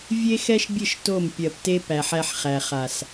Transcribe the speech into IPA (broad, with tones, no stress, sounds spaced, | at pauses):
vʲ e˦ x ɛ˦ ʃ bʲ ɘ˦˨ ʃ t o˦˨ m pʲ ɜ˨ p t e˦ p æ˨ ħ æ˦ ħ χ æ˨ χ a˨ s